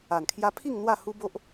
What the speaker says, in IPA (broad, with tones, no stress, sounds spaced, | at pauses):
a˨˩ n kʰ j a˧ pʰ i˥˧ ŋ n̪ w a˥˧ h u˦ b o˦ ʔ